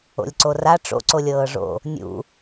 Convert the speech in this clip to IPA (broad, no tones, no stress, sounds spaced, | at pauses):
o̰ lʲ ǀ o r a ʈ͡ʂ o̰ ǀ o lʲ ɤː ʐ o̰ | nʲ ṵ